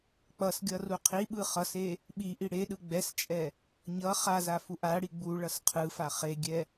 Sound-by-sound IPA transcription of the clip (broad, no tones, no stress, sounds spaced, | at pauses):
k͡p ʌ s ɡʲ ʌ r u qʰ i ɓ ɯ χ ʌ s e | ɓ i ʔ i ɽ e ɗ ɯ ɡ͡b ɛ s t͡ʃʼ ɛ | ɲ ʌ χ a z a f u ʔ a ɽ i ɡ͡b u ɭ ʌ s qʰ ɯ f a χ e ɡʲ ɛ